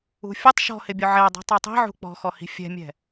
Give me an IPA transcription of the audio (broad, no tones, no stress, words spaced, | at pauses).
ṳfʲʊtˤ ʃɔ̤hɪbʲʊ ʕɛdˤi̤ tˤɛtˤi̤ ʕṳk͡pɔ̤xɔhi̤ fʲɛ̤mʲɛ̤